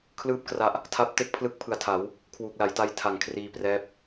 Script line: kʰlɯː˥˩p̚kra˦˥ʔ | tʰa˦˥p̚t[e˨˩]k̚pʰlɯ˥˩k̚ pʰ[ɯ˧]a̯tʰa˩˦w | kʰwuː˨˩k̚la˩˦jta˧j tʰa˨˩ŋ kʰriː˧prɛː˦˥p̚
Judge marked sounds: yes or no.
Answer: no, yes

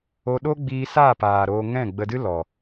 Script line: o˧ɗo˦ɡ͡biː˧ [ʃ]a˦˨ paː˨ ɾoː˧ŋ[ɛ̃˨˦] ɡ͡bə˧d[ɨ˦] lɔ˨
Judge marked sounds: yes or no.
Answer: no, no, yes

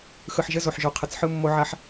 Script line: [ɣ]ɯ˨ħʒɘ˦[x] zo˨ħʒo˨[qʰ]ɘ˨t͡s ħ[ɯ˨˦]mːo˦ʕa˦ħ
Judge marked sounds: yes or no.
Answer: no, no, yes, no

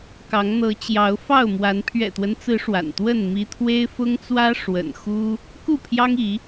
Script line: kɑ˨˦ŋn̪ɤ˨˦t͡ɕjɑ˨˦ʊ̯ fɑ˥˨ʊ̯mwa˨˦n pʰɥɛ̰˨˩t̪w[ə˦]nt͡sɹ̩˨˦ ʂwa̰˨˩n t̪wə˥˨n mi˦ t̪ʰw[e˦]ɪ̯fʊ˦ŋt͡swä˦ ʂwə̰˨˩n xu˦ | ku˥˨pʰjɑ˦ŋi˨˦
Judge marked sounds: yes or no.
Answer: yes, yes

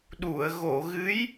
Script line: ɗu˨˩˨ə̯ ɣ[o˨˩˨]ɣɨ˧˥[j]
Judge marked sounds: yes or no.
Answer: yes, yes

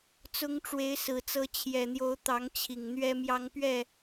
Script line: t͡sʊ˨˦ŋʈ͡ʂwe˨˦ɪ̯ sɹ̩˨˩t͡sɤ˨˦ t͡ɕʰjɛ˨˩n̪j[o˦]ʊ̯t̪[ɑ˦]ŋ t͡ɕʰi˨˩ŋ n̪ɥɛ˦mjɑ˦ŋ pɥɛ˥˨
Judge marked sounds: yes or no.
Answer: no, no

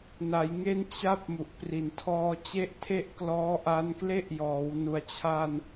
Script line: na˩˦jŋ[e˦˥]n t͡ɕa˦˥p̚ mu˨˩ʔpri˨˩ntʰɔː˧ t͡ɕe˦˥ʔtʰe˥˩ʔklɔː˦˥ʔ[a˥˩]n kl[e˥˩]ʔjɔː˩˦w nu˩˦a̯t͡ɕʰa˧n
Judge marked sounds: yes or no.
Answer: no, no, yes

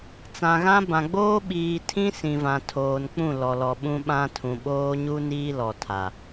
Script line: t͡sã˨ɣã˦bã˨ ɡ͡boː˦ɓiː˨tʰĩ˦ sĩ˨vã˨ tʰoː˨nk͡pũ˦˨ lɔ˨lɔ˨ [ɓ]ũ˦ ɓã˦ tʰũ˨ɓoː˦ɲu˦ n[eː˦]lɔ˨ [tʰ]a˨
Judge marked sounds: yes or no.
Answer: yes, no, yes

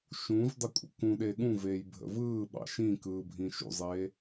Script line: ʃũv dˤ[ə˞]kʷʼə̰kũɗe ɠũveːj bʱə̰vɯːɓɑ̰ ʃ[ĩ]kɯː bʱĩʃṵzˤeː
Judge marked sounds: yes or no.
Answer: no, yes

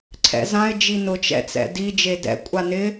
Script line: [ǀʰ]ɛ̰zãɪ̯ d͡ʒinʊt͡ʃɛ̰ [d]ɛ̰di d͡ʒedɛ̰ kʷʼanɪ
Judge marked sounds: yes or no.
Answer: yes, no

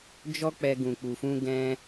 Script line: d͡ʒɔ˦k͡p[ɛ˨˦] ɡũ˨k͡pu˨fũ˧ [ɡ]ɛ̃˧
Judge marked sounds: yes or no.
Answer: no, yes

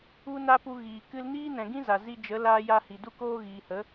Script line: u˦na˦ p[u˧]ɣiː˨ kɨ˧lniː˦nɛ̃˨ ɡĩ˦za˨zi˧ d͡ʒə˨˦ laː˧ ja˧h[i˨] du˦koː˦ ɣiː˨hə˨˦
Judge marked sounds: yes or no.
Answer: yes, yes

